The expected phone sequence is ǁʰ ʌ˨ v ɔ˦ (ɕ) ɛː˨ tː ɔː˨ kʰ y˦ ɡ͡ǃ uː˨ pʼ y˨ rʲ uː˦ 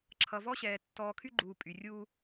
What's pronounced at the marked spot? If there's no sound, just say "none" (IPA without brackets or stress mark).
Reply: ɕ